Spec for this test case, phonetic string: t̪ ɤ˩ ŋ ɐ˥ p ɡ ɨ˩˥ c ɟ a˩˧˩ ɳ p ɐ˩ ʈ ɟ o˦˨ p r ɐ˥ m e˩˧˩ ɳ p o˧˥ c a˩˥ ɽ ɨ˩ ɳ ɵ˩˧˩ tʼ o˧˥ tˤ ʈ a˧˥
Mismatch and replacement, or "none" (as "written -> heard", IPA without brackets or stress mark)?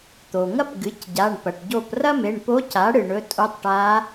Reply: ɤ˩ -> o˩